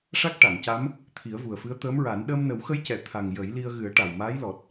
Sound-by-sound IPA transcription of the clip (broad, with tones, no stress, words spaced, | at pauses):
ʂa˦˥k̚ ʈa˨˩˨ŋca˧˥m | t̪ʰi˨˩˦ə̯vu˨˩ə̯fɨ˧˥ə̯ t̪əː˧˥mɹa˨˩˦n ɗəː˧mnə˨˩˦wxə˧˥jcɛ˨˩˨ t̪ʰa˨˩ŋ jə˨˩˦j li˧ə̯ɣɨ˨˩˦ə̯ ʈa˨˩wmaː˧˥jlɔ˨˩t̚